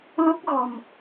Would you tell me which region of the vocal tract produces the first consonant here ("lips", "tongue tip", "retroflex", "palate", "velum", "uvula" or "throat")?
tongue tip